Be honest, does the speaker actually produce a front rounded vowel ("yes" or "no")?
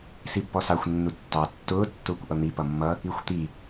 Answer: no